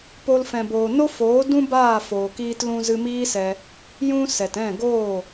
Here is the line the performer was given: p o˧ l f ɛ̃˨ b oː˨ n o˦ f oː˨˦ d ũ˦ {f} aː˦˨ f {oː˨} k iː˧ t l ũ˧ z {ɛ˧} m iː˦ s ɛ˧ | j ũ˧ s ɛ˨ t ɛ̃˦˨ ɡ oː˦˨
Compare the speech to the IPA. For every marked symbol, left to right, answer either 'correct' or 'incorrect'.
incorrect, correct, incorrect

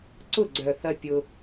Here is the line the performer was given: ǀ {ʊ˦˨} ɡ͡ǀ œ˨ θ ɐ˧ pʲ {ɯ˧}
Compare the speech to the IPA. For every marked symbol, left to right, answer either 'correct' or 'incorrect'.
correct, incorrect

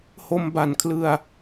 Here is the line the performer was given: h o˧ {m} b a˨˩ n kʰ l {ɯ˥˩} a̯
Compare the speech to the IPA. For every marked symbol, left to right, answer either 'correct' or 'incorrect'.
correct, incorrect

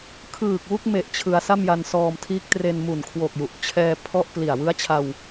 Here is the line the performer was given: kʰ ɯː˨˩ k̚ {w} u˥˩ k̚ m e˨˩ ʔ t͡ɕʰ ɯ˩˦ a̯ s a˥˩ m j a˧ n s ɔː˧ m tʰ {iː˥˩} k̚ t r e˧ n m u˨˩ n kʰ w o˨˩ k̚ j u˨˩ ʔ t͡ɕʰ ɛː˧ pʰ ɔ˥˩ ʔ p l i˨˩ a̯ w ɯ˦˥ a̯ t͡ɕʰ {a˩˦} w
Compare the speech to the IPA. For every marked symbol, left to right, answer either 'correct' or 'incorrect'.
correct, incorrect, incorrect

